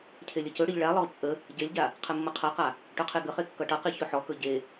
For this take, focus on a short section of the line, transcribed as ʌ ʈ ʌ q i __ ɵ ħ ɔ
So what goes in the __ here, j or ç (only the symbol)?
ç